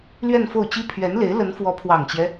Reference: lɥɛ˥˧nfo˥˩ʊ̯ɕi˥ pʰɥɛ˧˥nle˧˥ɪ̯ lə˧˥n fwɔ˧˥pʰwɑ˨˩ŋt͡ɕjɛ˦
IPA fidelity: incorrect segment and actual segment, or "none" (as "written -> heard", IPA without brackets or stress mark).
ɕ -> t͡ɕ